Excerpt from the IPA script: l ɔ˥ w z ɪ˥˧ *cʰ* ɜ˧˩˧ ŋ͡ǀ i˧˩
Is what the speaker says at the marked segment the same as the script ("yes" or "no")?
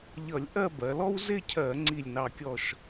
yes